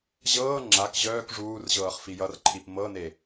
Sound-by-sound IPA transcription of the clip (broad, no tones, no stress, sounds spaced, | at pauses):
ʑ ɤː ŋ͡ǁ a k ʑ œː k ʐ uː r ʑ ɤː χ f i j ʌ r ǃʰ i p m ɤ n e